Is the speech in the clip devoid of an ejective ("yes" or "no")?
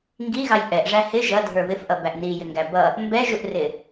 yes